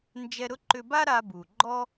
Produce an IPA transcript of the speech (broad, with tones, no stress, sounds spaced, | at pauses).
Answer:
n d͡ʒ ɛ˧ ɾ ʊ˥ ǃ ʏ˧ b a˥ ɾ a˧ b u˩ ɡ͡ǃ ɔ˥